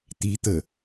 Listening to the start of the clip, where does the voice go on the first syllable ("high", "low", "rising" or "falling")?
rising